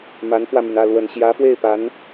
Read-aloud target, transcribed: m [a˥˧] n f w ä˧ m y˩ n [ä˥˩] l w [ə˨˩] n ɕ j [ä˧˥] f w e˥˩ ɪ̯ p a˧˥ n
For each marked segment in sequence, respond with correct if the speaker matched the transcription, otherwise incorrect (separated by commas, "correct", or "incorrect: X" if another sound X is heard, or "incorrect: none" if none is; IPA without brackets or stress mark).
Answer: incorrect: a˧˥, correct, correct, correct